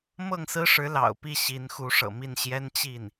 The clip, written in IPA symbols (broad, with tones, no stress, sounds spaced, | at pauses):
m ɤ˥˩ ŋ s ɹ̩˥ ʂ ɻ̩˧˥ l ɑ̰˨˩ ʊ̯ p i˥˩ ɕ i˧˥ n x u˧˥ ʂ ɤ̰˨˩ m i˥˩ n ɕ j ɛ˥ n t͡ɕ i˥˩ n